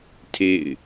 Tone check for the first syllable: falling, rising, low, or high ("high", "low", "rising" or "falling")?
falling